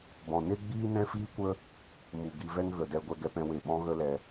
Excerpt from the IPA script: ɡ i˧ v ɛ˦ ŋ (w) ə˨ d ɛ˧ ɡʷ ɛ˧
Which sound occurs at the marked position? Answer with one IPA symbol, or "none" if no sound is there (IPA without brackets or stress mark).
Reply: ɣ